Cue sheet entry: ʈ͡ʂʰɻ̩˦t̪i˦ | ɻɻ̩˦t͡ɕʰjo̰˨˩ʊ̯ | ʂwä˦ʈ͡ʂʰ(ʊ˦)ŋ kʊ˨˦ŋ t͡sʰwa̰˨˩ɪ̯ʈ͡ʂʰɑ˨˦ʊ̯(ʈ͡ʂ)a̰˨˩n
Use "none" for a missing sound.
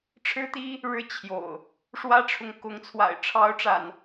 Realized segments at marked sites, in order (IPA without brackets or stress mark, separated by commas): ʊ˨˦, ʈ͡ʂ